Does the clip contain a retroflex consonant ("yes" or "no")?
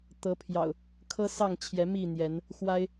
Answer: no